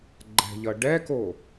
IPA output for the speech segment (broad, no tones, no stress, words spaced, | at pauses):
ɡ͡ǃɛ̤ʎʌ ɖɛko